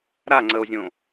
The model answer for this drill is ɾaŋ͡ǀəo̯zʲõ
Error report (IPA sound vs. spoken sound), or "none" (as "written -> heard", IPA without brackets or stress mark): none